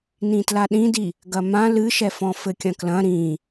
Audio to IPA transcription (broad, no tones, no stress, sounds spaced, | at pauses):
n ĩ t l a ɗ ĩ d i | ɡ ɐ m ã l ɨ ʃ ɛ f ɔ̃ f ɘ kʲ ɐ̃ k l ɐ̃ ɾ ĩ